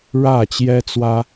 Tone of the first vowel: falling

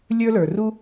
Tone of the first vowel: high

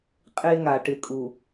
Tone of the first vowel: high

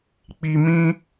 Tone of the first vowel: low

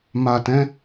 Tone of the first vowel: low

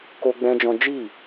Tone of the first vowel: high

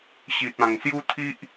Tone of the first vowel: low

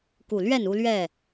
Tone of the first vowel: low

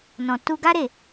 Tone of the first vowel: low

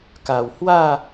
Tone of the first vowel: low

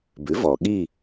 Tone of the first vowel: rising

